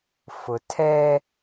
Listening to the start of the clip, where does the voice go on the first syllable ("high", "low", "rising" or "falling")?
low